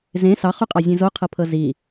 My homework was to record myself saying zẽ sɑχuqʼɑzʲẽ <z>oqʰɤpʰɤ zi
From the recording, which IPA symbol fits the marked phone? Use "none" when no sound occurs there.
z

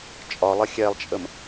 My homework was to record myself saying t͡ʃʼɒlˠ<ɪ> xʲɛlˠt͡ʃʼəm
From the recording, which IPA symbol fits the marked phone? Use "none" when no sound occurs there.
ə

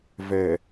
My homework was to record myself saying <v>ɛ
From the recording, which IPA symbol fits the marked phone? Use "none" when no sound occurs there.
v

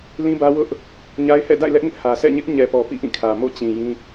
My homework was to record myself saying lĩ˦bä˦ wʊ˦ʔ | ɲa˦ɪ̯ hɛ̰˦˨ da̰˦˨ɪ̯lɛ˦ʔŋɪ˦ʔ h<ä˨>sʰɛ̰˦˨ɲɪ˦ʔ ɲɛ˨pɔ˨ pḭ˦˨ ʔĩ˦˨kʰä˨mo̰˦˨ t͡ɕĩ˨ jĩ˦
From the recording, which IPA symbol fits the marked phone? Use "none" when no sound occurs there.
ä˨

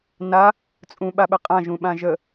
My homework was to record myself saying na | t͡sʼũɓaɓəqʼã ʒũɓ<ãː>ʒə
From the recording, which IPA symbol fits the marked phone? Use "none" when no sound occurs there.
ã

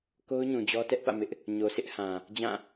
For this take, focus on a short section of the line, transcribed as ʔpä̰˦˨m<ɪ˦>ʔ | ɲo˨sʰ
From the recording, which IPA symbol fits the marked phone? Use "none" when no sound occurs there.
ɪ˦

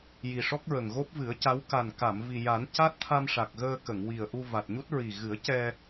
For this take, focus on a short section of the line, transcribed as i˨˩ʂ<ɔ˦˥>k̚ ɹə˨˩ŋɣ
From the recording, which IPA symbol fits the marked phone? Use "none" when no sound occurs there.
ɔ˦˥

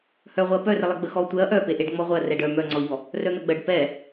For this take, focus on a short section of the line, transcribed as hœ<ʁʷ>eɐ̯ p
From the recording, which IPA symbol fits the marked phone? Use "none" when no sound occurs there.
ʁʷ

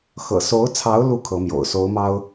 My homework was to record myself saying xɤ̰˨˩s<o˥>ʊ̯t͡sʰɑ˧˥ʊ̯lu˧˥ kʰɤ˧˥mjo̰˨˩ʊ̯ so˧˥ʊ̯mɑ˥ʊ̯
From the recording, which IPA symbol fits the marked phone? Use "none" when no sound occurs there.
o˧˥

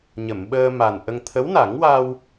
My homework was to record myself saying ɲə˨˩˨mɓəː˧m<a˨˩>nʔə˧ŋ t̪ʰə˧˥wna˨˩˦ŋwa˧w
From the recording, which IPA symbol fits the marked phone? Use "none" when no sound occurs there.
a˨˩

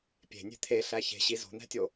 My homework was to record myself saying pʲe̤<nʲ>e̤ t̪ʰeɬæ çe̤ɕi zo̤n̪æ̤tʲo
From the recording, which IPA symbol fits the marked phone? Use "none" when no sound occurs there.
nʲ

